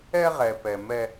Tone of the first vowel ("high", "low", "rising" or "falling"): high